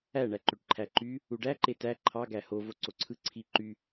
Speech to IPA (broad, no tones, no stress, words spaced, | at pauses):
æɳæ ǃøʈǃʰæǃy | uɖæ ǃetæ ǃʰɑɡæ ho voǀoǀʰɯ ǀʰi ǃy